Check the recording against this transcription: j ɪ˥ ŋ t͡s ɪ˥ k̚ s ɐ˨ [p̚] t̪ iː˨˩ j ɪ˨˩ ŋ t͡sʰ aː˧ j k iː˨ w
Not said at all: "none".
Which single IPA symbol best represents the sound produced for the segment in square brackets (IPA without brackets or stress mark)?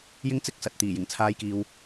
t̚